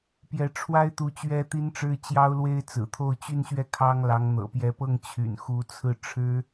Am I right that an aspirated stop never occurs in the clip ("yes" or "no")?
no